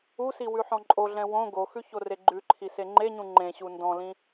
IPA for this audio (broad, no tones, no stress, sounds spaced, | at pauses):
u s i w ʉ ħ ɔ̃ ǃʼ o ɮ ɛ̃ w õ ɡ o x ʉ ç o r e ɡ͡ǃ ʉ ǃʰ i s e ŋ͡ǃ e ɲ ũ ŋ͡ǃ ẽ ɕ u n d ɔ̃ l ĩ